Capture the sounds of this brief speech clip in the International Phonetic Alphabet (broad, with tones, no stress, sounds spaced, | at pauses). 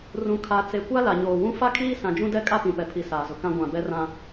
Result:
r ũ˨ kʰ a˨ t͡s e˨ kʷ a˦ l a˨ ɲ oː˨ w ũ˦ f a˦ kʰ iː˦ s ã˨ d͡ʒ ũ˦ d ɛ˦ kʼ a˦ p ĩ˨ p ɛ˨ pʰ i˨ s aː˨ z ʊ˨ k ã˦ ɡʷ ã˨ b ɛ˦ r ã˦